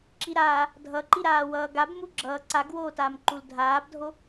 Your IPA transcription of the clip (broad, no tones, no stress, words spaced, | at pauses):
ǁiɾaː | dʱʌǃiɾaː wʌːɡab muɡ͡ǁʌː ǀaɡwoːtaːm ǃuldʱaːbdʱo